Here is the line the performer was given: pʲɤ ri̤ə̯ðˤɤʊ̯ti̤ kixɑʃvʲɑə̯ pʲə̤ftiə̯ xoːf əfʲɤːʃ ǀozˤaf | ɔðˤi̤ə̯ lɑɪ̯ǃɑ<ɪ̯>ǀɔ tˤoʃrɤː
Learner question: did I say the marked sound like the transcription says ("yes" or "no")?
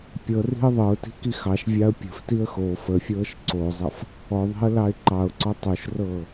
no